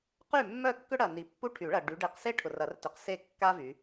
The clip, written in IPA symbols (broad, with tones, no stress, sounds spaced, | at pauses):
q y˥˨ mː œ˥˨ kː ʏ˥ ɽ ɐ˨ n i˨˦ pː u˥ ʈʰ y˨˩˦ ɭ ɐ˨ ɖ y˨˦ ɖ e˨˦ q s e˥ ʈʰ ʊ˨ r ɐ˨˩˦ r t ʏ˨˩˦ q s e˥˨ kː a˥ v y˨˦